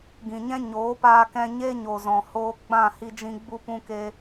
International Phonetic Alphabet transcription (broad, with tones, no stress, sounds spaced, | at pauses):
ɡ ĩ˨ ɲ ɛ̃˦ ɲ oː˨˦ p aː˧ k ɛ̃˧ ɲ e˦ ɲ o˨ z ɔ̃˨ h oː˧ ɡ͡b ã˦˨ h i˧ d͡ʒ ĩ˧ ɡ͡b u˧ p ũ˧ k e˧